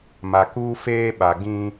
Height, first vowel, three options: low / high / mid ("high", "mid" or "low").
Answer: low